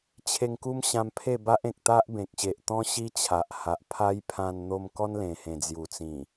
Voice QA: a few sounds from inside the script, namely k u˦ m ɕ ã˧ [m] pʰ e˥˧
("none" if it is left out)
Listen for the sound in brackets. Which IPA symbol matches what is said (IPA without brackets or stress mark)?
m